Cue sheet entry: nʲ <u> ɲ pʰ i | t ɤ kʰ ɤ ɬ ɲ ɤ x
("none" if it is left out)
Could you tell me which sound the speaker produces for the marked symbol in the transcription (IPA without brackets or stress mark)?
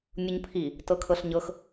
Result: u